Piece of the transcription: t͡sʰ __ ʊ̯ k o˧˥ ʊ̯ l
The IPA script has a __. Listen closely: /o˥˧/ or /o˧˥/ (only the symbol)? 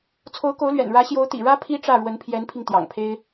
o˧˥